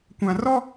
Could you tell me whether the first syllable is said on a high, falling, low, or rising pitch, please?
low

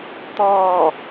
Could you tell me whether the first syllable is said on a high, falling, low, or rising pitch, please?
falling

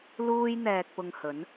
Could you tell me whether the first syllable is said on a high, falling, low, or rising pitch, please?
high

